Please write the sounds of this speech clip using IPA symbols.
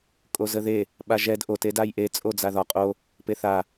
kʼ o z ə ð e | ɓ a ʒ ɛ d ʔ o t e d a j ʔ e t͡sʼ o d͡z a ð ɒ qʼ o | p e θ a

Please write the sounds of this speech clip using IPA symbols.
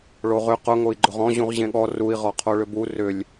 ɭ o ʁ ʏ q ʊ ŋ o i̯ ɡ͡ǃ ʊ ʁ ɔ̃ ʑ ũ ʁ ʑ ẽ ɠ ɔ r u i̯ ʁ ɔ qʰ o ɭ ʏ b u r ʏ lʲ

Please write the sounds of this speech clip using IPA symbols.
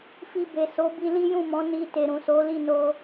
f i˧ b e˨ s o˨˦ b i˧ l i˦ j ũ˦˨ m ɔ̃˨˦ n i˧ t e˨ ɾ ũ˨ s o˨˦ l i˦˨ n o˧

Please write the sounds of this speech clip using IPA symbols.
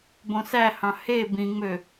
b õ s æ h ɑ̃ h e b ĩ ŋ͡m ø

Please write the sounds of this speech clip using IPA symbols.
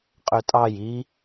qʼ ø tʼ ɑ j i

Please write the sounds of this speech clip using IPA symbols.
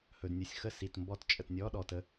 h ɵ˩ d nʲ u˩ sʲ x ə˥˧ s i˩ t m b ɔ˥˧ t t͡ʃʼ ə˩ t nʲ ɔ˧˥˧ ɗ ɔ˩ t ə˥˧

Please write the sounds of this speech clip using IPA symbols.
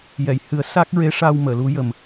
j ɛ˨˩˨ j h ɨ˨˩˦ ə̯ s a˦˥ k̚ ɹ e˧˥ ʂ a˧ w m əː˨˩˨ l u˧˥ j ə˨˩ m

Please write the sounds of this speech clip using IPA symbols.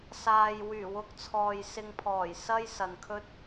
s aː˨ j w yː˨˩ w ʊ˧ k̚ t͡sʰ ɔː˨ j s ɪ˧ ŋ pʰ ɔː˨˩ j s ɐ˥ j s ɐ˨ n kʰ ɵ˥ t̚

